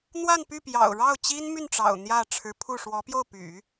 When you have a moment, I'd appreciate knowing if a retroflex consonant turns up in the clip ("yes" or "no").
yes